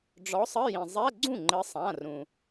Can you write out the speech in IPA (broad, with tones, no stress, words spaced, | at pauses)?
ɖ͡ʐɔ˨˥sˤɘ˧˥˧jĩ˩ zˤɛ˧˥˧ ɡ͡ǀũ˥˩ŋ͡ǃɘ˨˥sˤã˩˧˩ rũ˩